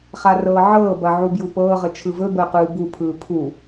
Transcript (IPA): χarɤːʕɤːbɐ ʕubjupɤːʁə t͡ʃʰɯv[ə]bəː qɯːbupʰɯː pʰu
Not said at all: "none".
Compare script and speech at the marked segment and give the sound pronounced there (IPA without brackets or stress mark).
ɵ